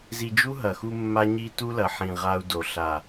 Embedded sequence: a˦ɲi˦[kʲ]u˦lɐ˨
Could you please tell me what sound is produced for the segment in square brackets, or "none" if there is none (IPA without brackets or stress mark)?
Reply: t